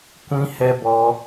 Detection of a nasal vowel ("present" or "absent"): present